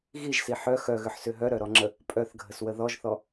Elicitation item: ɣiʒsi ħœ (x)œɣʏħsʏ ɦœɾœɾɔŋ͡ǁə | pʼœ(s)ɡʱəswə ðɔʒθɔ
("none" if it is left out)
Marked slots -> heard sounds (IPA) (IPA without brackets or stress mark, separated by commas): x, θ